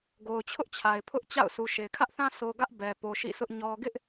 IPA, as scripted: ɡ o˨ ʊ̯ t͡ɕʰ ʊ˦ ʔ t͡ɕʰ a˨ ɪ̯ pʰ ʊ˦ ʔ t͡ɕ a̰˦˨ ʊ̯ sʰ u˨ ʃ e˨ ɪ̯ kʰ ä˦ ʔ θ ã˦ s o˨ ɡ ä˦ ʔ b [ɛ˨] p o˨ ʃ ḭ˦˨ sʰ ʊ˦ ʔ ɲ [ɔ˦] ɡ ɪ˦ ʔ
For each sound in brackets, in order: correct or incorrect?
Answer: correct, correct

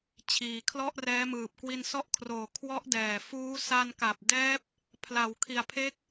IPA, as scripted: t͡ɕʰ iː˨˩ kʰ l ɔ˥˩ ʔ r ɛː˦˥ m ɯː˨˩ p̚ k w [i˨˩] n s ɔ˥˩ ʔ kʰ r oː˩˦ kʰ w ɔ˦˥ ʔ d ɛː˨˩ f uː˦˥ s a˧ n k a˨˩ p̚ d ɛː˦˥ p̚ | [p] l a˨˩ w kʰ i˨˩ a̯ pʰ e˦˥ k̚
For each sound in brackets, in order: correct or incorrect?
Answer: incorrect: i˧, incorrect: pʰ

